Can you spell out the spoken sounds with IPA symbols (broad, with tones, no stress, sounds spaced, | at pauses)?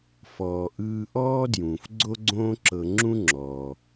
f ɔː˩ ʔ ɯː˧ ʔ ɔː˥ d j ũː˩ f ɡ͡ǀ o˥ ɡ͡ǀ õː˥ ǁ ɤ˧ ŋ͡ǁ ũ˥ ŋ͡ǁ ɔː˩